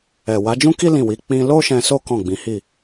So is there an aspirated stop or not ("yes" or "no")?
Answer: no